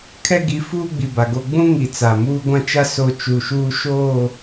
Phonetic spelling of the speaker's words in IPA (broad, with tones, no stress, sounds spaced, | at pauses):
kʰ ɛ˦ ɡ i˨˦ f uː˦ ɡ͡b i˨ b a˨ ɡ o˦ ɡ͡b ũ˦ ŋ i˨ t͡s a˨ m uː˦ ɡʷ ã˦ t͡ʃ a˦ s o˨ t͡ʃ u˨ ʃ uː˦ ʃ oː˦˨